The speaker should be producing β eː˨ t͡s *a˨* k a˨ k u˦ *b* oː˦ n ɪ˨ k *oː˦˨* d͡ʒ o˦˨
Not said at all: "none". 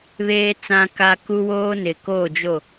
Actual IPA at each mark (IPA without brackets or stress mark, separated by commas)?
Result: ã˨, w, oː˦˨